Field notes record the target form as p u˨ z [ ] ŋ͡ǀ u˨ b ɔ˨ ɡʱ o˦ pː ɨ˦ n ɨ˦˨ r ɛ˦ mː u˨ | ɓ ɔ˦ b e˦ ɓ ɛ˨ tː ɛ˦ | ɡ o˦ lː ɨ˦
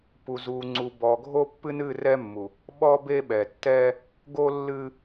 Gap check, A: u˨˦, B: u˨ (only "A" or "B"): B